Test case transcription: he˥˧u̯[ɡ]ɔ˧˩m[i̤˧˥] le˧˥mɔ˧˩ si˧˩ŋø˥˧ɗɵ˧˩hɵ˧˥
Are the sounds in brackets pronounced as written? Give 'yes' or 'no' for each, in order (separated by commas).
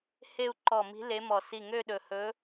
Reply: no, yes